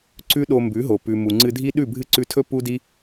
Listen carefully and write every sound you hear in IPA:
ǀ ʉ˦ ɗ o˧ m b ʉ˨˦ ɦ o˨ p ʉ˨ m u˨ ŋ͡ǀ ɨ˧ dʱ i˦ ɗ ʉ˦˨ bʱ ɨ˦ ǀ ʉ˧ tʰ ɵ˦ p u˦ d i˦

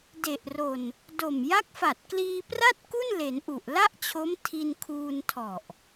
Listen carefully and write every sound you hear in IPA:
d e˨˩ ʔ r o˨˩ n | d o˨˩ m j a˦˥ k̚ f a˨˩ t̚ k l iː˧ p r a˥˩ t̚ k u˥˩ n l e˩˦ n ʔ u˨˩ ʔ l a˥˩ ʔ t͡ɕʰ o˦˥ m tʰ i˧ n kʰ uː˧ n tʰ ɔ˨˩ ʔ

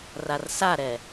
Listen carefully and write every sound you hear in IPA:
r a r s a ɾ ɛ

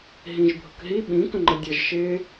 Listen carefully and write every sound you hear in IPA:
ɦ ĩ ʒ bʱ ʊ k ɦ i ɓ ĩ k ə̃ ŋ͡ǃ ə dʲ ʌ ʒ ʃ ɪ

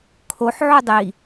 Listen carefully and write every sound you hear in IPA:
kʰ o ħ ʕ u dˤ i

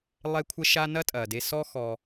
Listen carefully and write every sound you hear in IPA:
lˠ e˦ kʷʰ ə˦ ʃ a˦ n ɐ˦ tʼ ɐ˨ d e˧ s ɔ˦ x ɔ˧

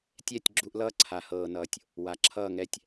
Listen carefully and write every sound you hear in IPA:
tʲ ɛ˦˨ tʲ ɡ͡ǁ u˧ ʔ l ʌː˦ ǀʰ a˨ h ɤː˨ n ʌː˨ tʲ | w a˨ ǁʰ ʌː˦˨ ŋ ɛ˧ tʲ

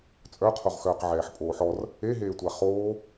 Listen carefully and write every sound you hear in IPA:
t͡sʼ œ qʰ o ʁ x œː q ʕ ɛː ħ pʼ oː ħ ɔ r | e ɦ eː tʷ a χ oː

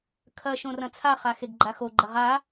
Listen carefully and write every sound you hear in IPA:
kʰ ɐ ʃ õ r ɐ̃ t͡sʰ a χ a x e ɡ ɡ͡ǃ a x o ɡ͡ǃ ɐ ʁ a

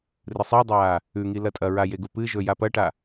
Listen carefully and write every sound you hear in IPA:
r ɨ sˤ i dˤ aː | ʉ ŋ i l ɐ tʼ ɐ ɹ a j e ɡ u p ɨ ʒ ɵ j a p ɐ ʈ a

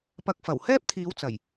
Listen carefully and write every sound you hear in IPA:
p ɐ˧ k̚ f ɐ˨˩ w h ɛː˥ p̚ t̪ʰ iː˨˧ w t͡s ɐ˨˩ j

